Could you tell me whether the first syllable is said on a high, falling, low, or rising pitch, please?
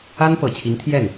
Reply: high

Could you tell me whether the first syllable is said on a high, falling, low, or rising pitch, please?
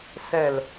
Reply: falling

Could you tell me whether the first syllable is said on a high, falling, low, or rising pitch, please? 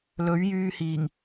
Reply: rising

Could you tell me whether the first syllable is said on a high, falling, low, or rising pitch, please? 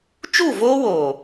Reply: falling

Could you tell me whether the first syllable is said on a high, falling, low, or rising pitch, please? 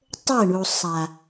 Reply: falling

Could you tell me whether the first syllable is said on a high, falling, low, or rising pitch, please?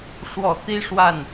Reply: low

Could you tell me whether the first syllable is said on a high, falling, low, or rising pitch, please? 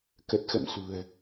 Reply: low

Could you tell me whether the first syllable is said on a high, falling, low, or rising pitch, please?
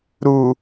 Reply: low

